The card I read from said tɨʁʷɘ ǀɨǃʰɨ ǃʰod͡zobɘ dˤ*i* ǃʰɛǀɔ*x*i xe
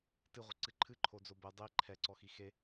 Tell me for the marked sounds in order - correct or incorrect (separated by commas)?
correct, correct